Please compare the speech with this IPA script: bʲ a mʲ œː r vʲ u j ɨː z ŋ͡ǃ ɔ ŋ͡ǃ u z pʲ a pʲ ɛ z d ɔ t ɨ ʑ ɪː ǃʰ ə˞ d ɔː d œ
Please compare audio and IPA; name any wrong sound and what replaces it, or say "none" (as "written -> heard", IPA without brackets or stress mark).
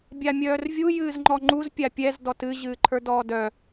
ɪː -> ɨː